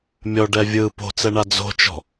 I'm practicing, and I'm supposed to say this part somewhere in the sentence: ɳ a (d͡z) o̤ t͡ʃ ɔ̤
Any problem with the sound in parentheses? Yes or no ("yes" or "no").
no